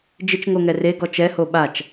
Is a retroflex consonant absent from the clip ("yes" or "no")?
yes